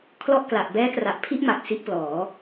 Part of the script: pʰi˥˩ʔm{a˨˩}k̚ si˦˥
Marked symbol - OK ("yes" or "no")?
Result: yes